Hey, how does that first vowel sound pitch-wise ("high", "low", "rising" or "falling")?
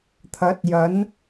rising